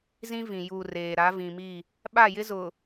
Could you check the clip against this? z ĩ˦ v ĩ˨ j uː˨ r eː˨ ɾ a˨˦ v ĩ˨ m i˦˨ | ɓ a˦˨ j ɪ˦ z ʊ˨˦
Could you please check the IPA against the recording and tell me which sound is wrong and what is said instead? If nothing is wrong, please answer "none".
ʊ˨˦ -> ʊ˨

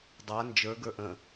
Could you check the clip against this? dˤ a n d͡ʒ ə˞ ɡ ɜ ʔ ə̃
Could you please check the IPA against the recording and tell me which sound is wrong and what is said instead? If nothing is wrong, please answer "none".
ɜ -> ə˞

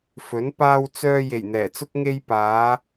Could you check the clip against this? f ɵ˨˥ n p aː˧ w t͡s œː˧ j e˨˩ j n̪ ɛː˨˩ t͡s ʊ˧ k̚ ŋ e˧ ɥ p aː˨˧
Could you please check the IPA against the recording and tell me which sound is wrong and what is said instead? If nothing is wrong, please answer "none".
ɥ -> j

